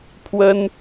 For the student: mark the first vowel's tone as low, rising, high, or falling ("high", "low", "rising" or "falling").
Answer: high